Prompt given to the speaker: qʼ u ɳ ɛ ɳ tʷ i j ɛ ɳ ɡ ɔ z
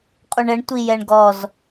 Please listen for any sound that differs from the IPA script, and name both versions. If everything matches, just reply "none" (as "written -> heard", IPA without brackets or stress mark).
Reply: none